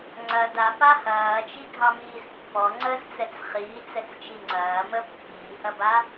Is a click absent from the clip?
no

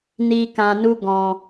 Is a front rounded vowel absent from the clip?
yes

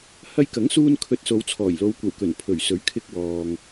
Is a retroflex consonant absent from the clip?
yes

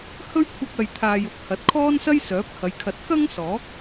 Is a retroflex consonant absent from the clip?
yes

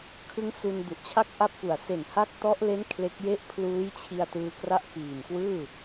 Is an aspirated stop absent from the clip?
no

